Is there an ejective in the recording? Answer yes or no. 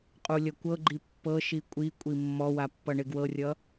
yes